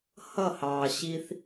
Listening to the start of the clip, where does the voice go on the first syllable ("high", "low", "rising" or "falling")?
falling